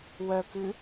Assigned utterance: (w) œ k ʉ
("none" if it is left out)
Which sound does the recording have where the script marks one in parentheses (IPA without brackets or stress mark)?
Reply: w